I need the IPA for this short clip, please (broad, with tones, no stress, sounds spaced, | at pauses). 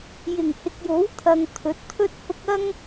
j ɪ˨˩ ŋ h ɪ˨ k̚ j o˨˥ w t̪ʰ ɐ˨ ŋ t̪ʰ ɵ˨˥ t̚ t̪ʰ ɵ˥ t̚ h ʊ˥ k̚ ɐ˥ ŋ